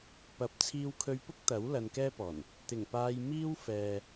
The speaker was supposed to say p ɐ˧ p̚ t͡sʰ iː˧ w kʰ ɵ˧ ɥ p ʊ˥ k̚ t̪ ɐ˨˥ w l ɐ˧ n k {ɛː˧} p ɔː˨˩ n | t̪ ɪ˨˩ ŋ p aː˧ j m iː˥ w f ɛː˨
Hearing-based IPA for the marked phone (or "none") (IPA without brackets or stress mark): ɛː˥